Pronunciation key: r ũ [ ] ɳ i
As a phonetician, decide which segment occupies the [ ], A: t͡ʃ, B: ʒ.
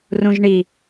B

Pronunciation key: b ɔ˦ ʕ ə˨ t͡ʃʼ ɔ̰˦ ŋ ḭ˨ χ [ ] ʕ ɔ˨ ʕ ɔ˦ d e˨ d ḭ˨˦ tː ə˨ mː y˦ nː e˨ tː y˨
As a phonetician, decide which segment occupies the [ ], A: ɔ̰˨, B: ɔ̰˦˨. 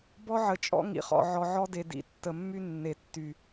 A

